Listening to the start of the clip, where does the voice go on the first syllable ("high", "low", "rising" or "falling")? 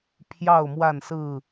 falling